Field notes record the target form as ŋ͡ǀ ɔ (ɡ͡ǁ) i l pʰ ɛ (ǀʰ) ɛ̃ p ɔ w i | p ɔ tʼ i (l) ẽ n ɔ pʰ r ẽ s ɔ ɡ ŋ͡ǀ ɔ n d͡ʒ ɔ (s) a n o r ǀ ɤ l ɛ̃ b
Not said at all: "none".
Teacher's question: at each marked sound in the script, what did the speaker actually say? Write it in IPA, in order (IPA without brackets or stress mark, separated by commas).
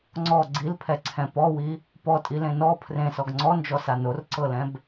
ɡ͡ǀ, ǀʰ, l, s